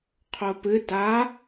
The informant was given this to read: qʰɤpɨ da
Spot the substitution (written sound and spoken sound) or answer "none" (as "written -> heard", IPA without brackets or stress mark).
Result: ɤ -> o